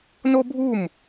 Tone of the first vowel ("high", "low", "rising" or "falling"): high